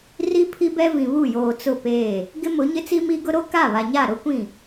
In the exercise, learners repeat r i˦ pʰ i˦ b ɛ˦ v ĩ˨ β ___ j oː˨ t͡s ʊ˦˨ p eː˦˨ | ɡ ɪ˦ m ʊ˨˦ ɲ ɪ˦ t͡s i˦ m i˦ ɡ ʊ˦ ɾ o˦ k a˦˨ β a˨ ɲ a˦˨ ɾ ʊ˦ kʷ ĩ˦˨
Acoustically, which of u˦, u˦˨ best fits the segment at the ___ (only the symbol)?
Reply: u˦˨